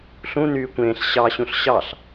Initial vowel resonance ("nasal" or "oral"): nasal